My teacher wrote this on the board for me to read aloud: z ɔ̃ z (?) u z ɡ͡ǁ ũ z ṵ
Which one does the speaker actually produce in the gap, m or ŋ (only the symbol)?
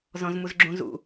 m